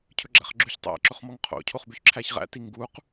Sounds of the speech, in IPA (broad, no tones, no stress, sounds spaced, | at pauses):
cʰ ɵ ɡ͡ǁ æ̰ χ ɡ͡ǁ ʉ ç tˤ æ̰ ǁ ɵ χ m ɔ ŋ qʰ o̰ cʰ o χ b y ç ǁʰ æ ç ʁ æ̰ t i ŋ ɡ u q